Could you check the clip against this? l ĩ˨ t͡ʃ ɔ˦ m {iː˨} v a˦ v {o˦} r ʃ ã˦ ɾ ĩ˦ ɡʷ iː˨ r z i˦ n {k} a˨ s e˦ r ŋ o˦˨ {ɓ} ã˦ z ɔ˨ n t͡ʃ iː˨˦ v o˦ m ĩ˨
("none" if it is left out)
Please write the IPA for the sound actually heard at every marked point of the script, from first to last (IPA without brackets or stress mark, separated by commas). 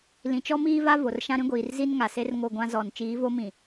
iː˦, o˨, ŋ, ɡʷ